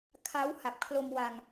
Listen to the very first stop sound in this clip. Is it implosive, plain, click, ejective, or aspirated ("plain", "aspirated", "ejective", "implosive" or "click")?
aspirated